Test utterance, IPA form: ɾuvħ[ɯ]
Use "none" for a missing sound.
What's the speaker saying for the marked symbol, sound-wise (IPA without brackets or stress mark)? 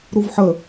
ə